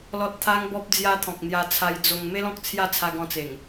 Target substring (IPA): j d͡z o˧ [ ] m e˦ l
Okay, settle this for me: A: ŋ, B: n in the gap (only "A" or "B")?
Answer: A